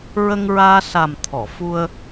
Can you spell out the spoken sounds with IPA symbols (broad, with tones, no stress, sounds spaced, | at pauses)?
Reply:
ɹ ə˧ ŋ ɹ aː˧ s a˨˩ m t̪ʰ ɔ˨˩˨ f u˧ ə̯